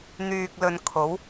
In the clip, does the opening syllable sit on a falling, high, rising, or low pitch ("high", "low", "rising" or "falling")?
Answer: low